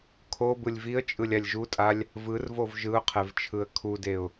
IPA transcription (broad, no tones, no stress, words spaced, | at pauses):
kʰo bɯlʲviə̯t͡ʃʼɯlʲ alʲʒutʼalʲ | vɯrvov ʒɯʊ̯qʰɛv t͡ʃʰɯə̯kʰudeʊ̯